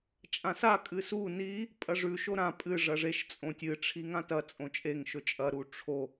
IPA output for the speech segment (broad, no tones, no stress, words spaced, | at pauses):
t͡ʃʼãsa kʼɨsu ni | pʼɐʐʉ ʃoɾã pʼɨ ʐɐʐeʃ t͡sʼõtʲɨ ʈ͡ʂʰiŋãtɐ t͡sʼõt͡ʃʼeŋ ʃɵt͡ʃʼɐ ɾuʈ͡ʂʰo